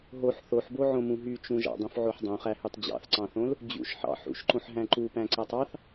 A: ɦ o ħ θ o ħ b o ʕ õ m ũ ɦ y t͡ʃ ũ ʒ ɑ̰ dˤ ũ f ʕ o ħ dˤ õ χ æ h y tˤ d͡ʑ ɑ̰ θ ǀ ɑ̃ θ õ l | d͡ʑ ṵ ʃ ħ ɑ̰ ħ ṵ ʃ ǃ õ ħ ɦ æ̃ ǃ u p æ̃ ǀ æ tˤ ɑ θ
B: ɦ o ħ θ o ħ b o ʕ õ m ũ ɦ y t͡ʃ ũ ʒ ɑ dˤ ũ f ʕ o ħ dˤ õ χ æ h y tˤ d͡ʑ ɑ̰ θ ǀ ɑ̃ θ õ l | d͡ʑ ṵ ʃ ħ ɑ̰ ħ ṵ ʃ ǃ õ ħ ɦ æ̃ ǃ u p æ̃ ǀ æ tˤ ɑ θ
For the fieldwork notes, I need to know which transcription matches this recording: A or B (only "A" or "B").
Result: A